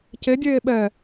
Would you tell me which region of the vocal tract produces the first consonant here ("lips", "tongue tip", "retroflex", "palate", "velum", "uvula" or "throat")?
palate